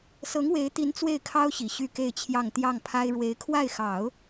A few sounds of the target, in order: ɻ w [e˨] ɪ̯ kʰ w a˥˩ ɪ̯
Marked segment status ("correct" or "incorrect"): incorrect